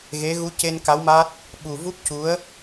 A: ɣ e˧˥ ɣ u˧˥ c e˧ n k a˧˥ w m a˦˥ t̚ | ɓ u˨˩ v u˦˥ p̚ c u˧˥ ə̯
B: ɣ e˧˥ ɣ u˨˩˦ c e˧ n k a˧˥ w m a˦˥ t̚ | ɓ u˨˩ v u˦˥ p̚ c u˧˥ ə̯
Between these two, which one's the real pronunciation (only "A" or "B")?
A